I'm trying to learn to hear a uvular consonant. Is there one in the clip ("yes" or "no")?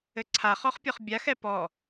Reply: yes